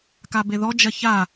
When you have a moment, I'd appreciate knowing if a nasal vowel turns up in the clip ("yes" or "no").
no